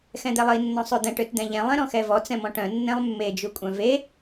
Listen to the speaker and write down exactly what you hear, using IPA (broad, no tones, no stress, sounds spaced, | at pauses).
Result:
x ɛ̃ d̪ ɛ lˠ i nː ɔ̃ sˤ ø d̪ ɛ̃ ʈ ø t d̪ ɛ̃ ʎ ɛ̃ lˠ ɛ̃ ɾ ɔ̃ x ɛ v ɔ t͡s ɛ̃ m ɔ̃ ʈ œ̃ nː ɛ̃ lˠ mː e d͡ʒ u kʷʼ œ̃ v e